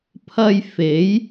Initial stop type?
aspirated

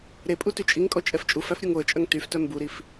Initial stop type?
ejective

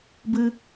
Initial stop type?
plain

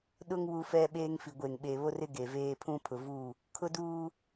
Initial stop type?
implosive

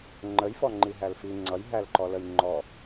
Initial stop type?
click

